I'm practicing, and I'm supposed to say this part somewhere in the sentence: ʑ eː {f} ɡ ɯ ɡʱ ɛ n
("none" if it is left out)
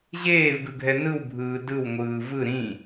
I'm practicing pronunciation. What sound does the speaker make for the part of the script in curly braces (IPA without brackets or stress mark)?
v